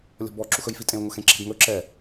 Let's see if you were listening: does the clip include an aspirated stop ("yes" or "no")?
no